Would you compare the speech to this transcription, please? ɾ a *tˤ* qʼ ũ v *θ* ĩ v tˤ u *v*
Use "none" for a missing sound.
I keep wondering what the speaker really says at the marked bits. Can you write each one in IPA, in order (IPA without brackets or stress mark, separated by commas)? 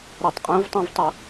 tˤ, tˤ, none